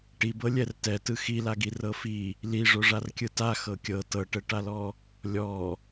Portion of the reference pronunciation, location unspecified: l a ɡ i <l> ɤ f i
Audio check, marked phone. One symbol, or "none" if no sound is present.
r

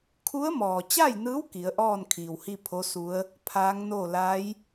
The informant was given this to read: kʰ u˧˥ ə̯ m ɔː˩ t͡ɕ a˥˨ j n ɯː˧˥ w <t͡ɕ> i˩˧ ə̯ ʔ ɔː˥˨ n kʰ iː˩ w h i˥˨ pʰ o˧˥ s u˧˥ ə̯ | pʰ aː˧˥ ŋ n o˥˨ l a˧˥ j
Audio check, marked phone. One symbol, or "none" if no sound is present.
k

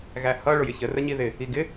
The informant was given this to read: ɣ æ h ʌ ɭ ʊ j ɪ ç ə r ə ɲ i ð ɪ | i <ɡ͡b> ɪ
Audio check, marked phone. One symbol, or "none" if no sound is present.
ɡ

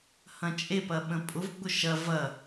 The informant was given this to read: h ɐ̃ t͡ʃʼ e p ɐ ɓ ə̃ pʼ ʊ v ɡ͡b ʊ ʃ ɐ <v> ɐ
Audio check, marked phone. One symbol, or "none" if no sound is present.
v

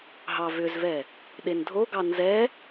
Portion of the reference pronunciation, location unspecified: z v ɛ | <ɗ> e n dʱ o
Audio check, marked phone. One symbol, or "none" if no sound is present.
ɗ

